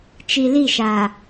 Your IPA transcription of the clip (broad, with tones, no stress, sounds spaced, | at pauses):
t͡ʃ i˨ l i˦˨ ʃ a˨